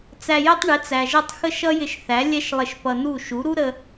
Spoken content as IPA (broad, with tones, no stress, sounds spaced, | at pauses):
t͡s æ˧ j ə˥ tˤ ɳ ɪ˩˥ t͡s æ˩ ʒ ʌ˥˩ tˤ x ə˥ ʃ ʌ˥ j ɪ˧ ʃ θ æ˩˥ lʲ ɛ˥ ʃ lˠ ɪ˧ ʃ p ʌ˧ n u˥˩ ʃ u˩˥ ɾ u˥ ɾ ə˧